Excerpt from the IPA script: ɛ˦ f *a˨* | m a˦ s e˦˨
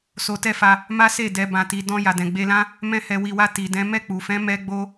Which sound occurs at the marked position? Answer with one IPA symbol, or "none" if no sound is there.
a˧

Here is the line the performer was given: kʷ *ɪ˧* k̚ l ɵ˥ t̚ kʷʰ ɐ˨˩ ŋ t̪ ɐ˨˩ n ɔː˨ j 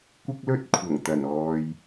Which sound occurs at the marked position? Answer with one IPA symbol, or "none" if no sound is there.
ɪ˥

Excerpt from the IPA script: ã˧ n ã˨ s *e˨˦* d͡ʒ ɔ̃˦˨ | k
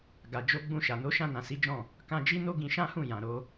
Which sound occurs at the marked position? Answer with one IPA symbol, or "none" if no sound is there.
i˨˦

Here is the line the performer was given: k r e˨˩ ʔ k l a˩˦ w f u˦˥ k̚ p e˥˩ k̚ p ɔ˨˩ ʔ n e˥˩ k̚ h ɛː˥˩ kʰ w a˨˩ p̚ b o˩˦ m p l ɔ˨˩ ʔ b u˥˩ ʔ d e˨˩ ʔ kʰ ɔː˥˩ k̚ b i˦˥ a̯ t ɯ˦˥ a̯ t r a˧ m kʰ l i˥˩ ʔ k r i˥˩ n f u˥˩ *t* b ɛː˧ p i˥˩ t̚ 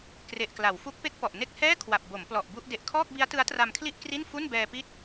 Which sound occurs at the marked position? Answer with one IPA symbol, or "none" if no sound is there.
n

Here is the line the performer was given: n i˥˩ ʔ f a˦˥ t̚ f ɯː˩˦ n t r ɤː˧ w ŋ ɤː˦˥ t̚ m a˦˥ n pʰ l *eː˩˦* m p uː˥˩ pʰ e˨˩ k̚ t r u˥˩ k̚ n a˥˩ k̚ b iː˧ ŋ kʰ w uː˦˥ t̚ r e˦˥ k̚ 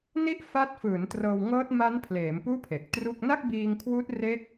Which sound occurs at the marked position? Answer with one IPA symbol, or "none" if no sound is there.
eː˩˦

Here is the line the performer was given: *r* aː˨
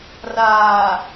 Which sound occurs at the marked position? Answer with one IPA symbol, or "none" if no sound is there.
r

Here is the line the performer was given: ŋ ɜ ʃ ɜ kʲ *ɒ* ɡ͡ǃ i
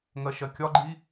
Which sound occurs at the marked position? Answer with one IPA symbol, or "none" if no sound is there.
ɒ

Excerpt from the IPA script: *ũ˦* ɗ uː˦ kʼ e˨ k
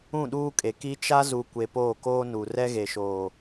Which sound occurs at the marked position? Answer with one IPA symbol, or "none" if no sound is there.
ũ˦˨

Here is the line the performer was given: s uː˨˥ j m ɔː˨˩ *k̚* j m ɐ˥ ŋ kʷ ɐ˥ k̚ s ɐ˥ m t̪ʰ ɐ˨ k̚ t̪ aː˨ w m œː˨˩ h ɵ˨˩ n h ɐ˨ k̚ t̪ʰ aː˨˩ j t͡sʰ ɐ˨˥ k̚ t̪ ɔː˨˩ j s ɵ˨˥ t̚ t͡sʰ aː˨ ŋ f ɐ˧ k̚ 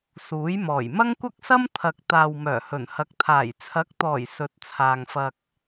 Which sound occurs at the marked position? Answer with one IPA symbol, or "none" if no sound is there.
none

